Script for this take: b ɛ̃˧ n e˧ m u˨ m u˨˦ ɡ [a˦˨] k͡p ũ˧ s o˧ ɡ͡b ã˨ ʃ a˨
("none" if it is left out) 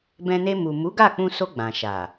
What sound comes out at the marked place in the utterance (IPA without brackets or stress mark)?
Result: a˦˨